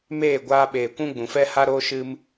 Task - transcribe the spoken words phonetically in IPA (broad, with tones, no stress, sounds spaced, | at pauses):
m eː˦˨ ɡʷ aː˧ ɓ eː˨ kʷ ũ˦ ɡ͡b ũ˨ f ɛ˦ h a˦ ɾ oː˦ ʃ ɨ˧ m